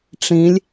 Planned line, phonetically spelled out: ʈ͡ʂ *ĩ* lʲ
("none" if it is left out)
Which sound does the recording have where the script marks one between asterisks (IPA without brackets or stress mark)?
ĩ